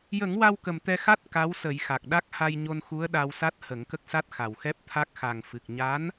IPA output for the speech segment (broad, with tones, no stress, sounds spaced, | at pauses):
j ə˨˩˦ ŋ w a˧ w k ə˨˩ m t̪ ɛ˧ x a˦˥ t̚ k a˧˥ w s ə˨˩˦ j x a˨˩ k̚ ɗ a˦˥ k̚ h a˧ j ɲ o˧ n x u˧˥ ə̯ ɗ a˧ w s a˦˥ t̚ h ə˨˩˦ ŋ k ə˦˥ k̚ s a˦˥ t̚ x a˨˩ w x ɛ˦˥ p̚ t̪ʰ a˦˥ k̚ x a˨˩ ŋ f ɨ˨˩ k̚ ɲ a˧˥ n